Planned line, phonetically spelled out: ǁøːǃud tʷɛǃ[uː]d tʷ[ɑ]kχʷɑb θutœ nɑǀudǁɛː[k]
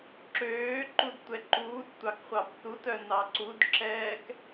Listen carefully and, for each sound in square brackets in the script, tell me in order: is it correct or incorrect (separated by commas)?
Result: correct, correct, correct